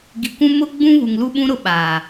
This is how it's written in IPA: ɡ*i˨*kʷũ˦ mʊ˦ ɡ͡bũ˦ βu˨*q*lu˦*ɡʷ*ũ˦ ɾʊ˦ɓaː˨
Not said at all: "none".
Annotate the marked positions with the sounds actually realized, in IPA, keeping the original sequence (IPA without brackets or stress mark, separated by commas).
i˨, ŋ, ɓ